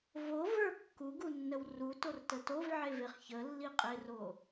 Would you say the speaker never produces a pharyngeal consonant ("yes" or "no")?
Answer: no